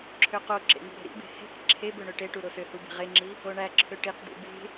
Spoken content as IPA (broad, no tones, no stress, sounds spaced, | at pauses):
ǁʰ ø q o ǁ ḛ ŋ ṳ ɾ e̤ ɾ ḭ b e̤ h e̤ k ǁʰ e b ø ɳ ø ʈ e ʈ u ɾ o s ø h u b e̤ ʁ e ŋ͡ǁ i | o ɳ æ ǁʰ ø ʈ i q d ḭ b e̤